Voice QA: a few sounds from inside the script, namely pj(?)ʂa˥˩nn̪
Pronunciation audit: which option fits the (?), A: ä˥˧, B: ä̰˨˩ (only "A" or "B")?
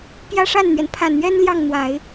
A